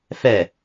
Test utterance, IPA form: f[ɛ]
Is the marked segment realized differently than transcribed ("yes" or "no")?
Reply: no